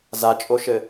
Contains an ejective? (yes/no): yes